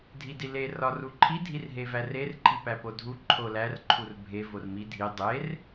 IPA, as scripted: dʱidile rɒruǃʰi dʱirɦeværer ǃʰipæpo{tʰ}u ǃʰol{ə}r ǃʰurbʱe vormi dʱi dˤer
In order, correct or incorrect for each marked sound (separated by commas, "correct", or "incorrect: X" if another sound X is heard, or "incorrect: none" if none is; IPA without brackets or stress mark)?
incorrect: dʱ, incorrect: æ